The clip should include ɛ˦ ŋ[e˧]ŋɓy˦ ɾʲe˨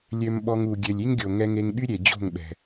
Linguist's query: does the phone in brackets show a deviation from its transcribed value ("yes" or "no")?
no